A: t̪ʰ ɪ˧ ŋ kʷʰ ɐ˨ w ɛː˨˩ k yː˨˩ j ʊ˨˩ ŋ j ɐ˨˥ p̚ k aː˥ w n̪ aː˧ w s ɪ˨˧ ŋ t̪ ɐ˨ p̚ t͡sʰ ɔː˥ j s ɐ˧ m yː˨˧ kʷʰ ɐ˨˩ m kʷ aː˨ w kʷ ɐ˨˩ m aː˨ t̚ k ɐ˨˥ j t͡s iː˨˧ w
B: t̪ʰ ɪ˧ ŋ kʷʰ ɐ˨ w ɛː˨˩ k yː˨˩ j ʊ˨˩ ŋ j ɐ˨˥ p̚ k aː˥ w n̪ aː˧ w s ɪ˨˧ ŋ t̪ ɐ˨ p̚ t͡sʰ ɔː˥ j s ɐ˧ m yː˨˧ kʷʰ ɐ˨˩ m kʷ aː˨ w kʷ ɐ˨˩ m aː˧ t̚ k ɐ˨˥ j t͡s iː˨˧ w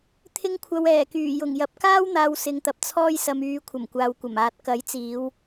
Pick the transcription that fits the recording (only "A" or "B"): A